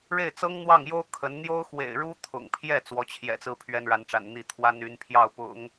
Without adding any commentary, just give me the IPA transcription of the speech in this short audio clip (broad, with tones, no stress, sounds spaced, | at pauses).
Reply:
ɻ e˥˩ ɪ̯ t͡s ɤ˥ ŋ n̪ w ɑ˥˩ ŋ j o˥ ʊ̯ kʰ ə˧˥ n n̪ j o˥ ʊ̯ x w ḛ˨˩ ɪ̯ ɻ u˥ t̪ʰ ʊ̰˨˩ ŋ pʰ j ɛ˥˩ t͡s w ɔ˧˥ t͡ɕʰ j ɛ̰˨˩ t͡s ɹ̩˥˩ pʰ ɥ ɛ˥ n ɻ a˧˥ n ʈ͡ʂ a̰˨˩ n n̪ i˥˩ t̪ʰ w a˥ n y˧˥ n pʰ j ɑ˥˩ ʊ̯ p ʊ̰˨˩˦ ŋ